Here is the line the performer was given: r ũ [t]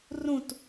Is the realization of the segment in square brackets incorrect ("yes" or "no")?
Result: no